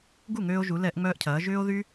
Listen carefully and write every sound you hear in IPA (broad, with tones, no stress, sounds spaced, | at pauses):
ɡ u˥˩ ŋ øː˧ o̯ ʒ u˩˧ l ɛ˧˩˧ ʔ ŋ͡m œː˧ ʔ cʰ ɐː˩˧ ʒ ʏː˧ o̯ ð y˧